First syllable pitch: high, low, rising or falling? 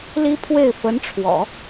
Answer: high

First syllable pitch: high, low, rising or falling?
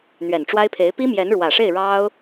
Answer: low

